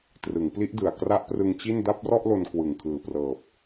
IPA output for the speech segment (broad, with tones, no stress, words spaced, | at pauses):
trɯ˩˦ŋpli˦˥ʔ dɯ˨˩a̯ kra˦˥ʔprɯ˧ŋ t͡ɕi˥˩n da˥˩p̚rɔ˥˩ʔlo˧n kwɯ˨˩ŋkʰɯː˨˩prɤː˨˩p̚